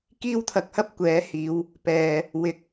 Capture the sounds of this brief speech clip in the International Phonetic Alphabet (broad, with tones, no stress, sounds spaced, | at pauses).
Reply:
k iː˥ w t̪ʰ ɐ˧ k̚ h ɐ˥ p̚ kʷ ɛː˨˥ h iː˨˧ w | p ɛː˨˩ | w ɪ˨˥ k̚